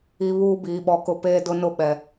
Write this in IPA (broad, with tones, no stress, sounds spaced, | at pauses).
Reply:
i˨ β uː˦ b iː˨ ɓ ɔ˨ k ʊ˦ p eː˦ d ʊ˦ n ʊ˦ ɓ ɛ˨